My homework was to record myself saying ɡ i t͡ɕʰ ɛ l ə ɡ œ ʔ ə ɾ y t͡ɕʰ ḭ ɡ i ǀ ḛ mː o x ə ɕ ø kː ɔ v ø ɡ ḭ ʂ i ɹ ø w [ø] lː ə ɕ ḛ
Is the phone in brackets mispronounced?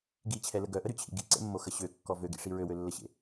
no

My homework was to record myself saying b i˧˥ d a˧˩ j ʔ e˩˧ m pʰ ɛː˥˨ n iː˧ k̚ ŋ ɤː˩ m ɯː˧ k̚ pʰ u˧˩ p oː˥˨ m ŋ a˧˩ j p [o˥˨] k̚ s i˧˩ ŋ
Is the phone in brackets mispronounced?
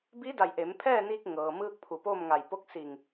no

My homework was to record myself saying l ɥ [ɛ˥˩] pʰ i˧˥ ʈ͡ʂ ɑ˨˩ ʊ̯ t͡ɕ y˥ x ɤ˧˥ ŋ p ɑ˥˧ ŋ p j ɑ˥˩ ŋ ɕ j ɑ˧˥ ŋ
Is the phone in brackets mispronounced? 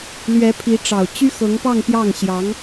yes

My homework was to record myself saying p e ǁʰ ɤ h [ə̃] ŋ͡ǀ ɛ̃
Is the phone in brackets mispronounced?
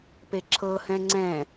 yes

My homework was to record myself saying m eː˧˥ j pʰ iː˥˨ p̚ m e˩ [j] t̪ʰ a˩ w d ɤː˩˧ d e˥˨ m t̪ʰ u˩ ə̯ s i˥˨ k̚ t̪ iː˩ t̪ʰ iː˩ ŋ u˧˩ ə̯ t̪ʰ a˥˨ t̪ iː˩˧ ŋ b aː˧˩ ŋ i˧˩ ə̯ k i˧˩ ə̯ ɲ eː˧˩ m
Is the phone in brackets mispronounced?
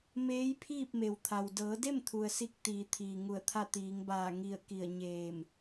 yes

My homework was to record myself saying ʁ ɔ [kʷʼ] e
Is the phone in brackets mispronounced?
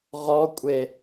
no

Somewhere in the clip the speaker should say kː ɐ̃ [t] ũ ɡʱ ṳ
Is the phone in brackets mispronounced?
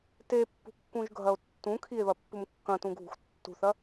no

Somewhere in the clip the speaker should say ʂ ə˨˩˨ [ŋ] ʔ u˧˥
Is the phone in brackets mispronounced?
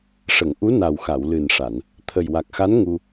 no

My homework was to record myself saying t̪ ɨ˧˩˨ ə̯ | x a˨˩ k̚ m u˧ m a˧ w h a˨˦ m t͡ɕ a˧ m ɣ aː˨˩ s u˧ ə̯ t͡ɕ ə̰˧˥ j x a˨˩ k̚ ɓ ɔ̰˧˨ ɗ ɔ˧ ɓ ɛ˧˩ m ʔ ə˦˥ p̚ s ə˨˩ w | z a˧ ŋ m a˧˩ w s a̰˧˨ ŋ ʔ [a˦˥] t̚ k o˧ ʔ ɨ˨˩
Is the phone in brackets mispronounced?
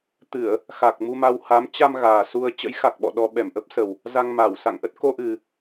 yes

